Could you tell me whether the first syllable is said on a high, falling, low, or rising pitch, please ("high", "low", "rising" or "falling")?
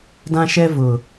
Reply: high